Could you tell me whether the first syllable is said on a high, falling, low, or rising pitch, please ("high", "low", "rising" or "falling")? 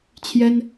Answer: high